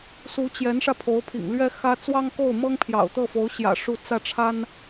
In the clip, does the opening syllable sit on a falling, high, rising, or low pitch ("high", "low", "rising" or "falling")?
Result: rising